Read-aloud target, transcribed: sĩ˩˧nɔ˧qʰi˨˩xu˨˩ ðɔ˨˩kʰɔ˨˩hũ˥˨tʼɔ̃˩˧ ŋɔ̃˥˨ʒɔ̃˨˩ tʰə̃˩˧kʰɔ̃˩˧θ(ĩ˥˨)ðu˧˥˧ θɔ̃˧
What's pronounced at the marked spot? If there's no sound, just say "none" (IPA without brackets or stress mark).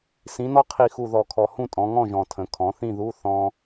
ĩ˥˨